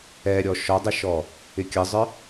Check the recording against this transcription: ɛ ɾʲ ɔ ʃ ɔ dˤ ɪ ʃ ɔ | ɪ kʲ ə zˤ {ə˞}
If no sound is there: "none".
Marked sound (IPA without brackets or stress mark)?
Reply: ə˞